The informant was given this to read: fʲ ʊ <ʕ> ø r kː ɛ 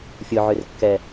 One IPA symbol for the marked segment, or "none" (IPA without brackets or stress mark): ʕ